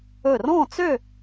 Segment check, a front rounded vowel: present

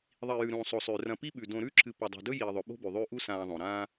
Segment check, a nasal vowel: present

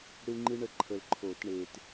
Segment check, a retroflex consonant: present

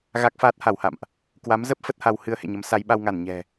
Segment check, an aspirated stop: absent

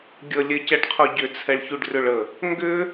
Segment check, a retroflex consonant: present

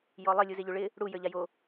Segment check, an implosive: absent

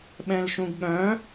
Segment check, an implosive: present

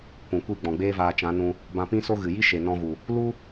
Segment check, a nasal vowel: present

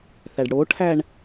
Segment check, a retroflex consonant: present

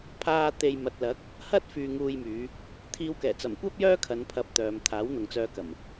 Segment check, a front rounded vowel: present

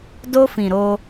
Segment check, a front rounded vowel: absent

